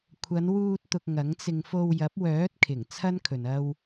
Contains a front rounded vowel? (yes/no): yes